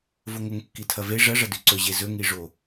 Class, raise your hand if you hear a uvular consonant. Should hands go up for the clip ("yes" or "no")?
no